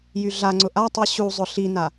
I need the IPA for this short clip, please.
j y ɮ a ŋ͡ǀ ʊ ʔ a tˤ i ɕ u zˤ ʊ ɬ i n a

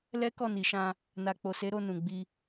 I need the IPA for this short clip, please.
l ɛ˦ k ɔ˦˨ n i˨ ʃ ã˧ | n a˨ k͡p o˨ s e˨˦ ɾ o˧ n ũ˨ ɡ͡b i˧

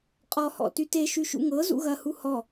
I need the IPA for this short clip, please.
qʼ ɔ h ɔ̰ t y t e ʃ y ʃ ṵ ŋ ɤ z ṵ ɣ ɐ h u h ɔ

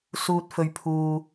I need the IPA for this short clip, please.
s uː˧ t̚ f ɵ˧ ɥ pʰ uː˧

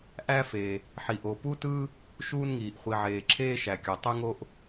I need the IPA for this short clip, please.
ʔ æ˥ f e˩ | ħ i˩ ʔ o˩ p u˥ t ɯ˥ | ʃ uː˥ n ŋ iː˩ ʔ χʷ i˩ ʕ eː˩ ǁʰ eː˥ ʃ æ˩ kʲ o˩ tˤ y˥ ŋ o˥ ʔ

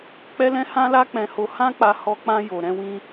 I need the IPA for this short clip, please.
k͡p ɛ˦ l ɛ̃˦ h ã˦ l a˦ k͡p ɛ̃˧ h o˧ h ã˦ k͡p a˧ h ɔ˧ k͡p ã˧ j o˧ ɾ ɛ̃˦ w ĩ˦

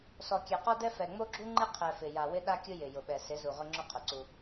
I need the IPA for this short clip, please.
s ɔ˨ kʲ ɛ˨ q ɔ˦ d ɛ˦ f ɛ˨ ŋ͡m o˦ ɡ͡ǁ u˦ ŋ͡ǃ ɪ˦ qʰ ɛ˨ f ɪ˨ j a˨ w ɪ˦ ɗ a˦ kʲ ʊ˦ j ɪ˨ j ʊ˨ ɓ ɛ˨ s ɪ˨˦ z u˨ ʁ ʊ˦ ŋ͡ǁ ʊ˦ qʰ ʊ˨ ǀ u˦

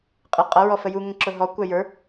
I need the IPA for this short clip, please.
qʼ ɪ qʼ ʌ ɹ ɔ f ə j u ŋ ə̃ ǁ ʊ ɦ ɔ kʷ æ j ə˞

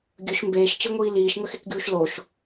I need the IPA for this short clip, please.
ɡʲ ɵ ʃ m b eː ʃ t͡ʃ i ŋʷ iː l iː ʃ ŋ ə x e k ɡʲ uː ʃ l o ʃ

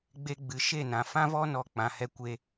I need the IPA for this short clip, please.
ɡ͡b e˧ ɡ͡b ɨ˨ ʃ e˦˨ n ã˨ f ã˦ v ɔ˦ n ɔ˧ k͡p ã˨ h ɛ˧ kʷ e˦

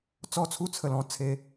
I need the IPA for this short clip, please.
t͡s ɔ˧ t͡sʰ u˧ t͡sʰ ə˨˩ l ɔ̃˧ t͡sʰ e˨˦

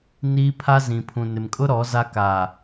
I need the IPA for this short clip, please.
n iː˦ pʰ a˦ z ĩ˨ pʰ ũ˨ n ɪ˨ m kʼ ʊ˦ ɾ ɔ˨˦ z a˦ k aː˨

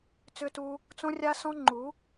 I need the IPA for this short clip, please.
t͡s ʏ˧ t u˧ | t͡s õ˦ rʲ a˦ s ɔ̃˦ ŋ͡ǃ u˨˦

